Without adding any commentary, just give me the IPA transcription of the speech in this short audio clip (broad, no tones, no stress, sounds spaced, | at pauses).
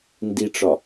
n d i ʈ͡ʂ ɒ